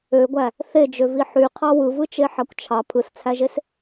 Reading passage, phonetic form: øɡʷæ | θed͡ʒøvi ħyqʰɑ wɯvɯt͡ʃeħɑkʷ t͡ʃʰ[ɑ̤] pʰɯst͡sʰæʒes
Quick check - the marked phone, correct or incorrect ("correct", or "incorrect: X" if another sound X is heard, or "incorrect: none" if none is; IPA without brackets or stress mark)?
incorrect: ɑ